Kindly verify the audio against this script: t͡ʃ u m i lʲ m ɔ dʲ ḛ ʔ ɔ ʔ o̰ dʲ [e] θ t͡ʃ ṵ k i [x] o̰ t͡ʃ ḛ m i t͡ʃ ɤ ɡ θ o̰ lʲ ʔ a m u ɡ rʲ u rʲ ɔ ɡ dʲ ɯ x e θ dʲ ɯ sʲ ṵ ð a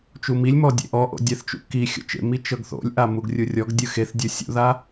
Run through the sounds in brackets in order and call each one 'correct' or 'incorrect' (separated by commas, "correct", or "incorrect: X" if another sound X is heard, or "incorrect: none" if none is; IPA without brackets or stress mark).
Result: incorrect: ɛ, incorrect: xʲ